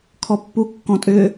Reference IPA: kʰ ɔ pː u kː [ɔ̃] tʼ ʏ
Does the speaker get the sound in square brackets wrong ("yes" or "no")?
no